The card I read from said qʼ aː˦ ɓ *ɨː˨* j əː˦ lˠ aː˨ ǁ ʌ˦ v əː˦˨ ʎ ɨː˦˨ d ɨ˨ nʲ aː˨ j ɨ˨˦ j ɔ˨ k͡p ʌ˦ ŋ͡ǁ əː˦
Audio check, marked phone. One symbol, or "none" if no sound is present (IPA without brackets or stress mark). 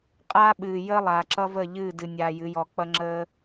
ɨː˨